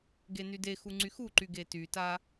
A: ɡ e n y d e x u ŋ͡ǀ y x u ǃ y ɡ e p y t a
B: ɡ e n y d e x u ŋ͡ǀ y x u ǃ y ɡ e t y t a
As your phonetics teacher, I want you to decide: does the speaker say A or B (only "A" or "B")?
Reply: B